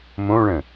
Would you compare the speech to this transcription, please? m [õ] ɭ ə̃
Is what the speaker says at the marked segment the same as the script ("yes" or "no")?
yes